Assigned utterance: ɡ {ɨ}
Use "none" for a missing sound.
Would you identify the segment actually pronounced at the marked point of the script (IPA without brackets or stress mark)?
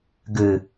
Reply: ɨ